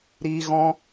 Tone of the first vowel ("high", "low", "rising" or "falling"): high